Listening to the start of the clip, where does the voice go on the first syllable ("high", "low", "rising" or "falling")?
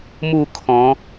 falling